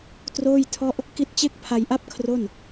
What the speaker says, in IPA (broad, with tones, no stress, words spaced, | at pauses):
troː˥˩jtʰɔ˥˩ʔ | ki˦˥t̚t͡ɕe˥˩k̚ pʰa˧jʔa˥˩p̚ kʰro˥˩n